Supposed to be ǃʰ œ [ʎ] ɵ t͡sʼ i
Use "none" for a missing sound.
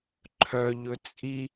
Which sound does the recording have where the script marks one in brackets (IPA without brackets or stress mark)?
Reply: ʎ